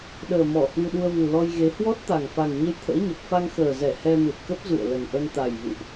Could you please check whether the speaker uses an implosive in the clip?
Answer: yes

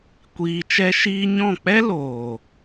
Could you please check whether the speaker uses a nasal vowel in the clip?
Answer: yes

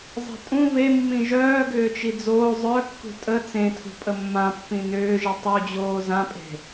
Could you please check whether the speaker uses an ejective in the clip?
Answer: yes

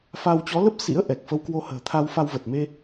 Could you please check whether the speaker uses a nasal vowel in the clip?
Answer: no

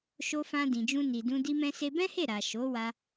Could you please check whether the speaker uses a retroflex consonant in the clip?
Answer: no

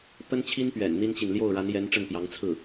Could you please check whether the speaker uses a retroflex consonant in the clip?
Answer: yes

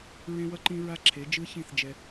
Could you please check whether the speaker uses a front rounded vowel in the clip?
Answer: no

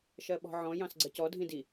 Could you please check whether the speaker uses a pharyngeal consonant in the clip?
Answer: yes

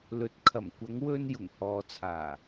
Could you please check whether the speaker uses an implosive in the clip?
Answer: no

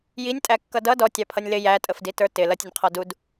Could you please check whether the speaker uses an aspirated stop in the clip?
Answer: yes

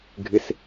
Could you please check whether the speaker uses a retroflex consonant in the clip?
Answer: no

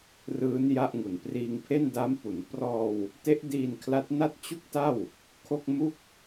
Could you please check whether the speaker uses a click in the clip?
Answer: no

